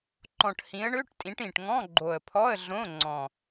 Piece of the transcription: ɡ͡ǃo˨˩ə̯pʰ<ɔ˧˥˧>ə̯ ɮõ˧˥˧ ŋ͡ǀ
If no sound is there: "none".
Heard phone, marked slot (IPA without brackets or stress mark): ɔ˧˥˧